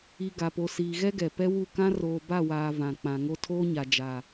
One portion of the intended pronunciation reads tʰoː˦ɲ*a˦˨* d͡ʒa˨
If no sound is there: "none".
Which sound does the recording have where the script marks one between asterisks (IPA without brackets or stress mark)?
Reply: a˨